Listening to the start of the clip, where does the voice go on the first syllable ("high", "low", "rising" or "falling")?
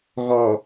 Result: low